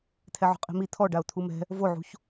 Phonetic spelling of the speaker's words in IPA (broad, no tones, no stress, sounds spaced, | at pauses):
t̪ʰ ɛ ʕ o̤ qʼ i̤ m i t̪ʰ ɔ ɖ a ʊ̯ t̪ʰ u m ɛ̤ | v o ʕ ṳ ç